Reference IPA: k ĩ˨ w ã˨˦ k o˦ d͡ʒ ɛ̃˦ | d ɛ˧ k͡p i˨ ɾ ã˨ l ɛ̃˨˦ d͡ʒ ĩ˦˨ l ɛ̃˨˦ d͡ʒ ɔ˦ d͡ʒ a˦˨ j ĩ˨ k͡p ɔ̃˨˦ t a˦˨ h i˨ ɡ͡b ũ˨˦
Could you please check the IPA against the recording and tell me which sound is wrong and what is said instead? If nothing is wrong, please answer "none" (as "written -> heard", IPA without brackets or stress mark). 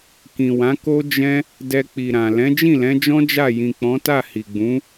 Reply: ɔ˦ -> ɔ̃˦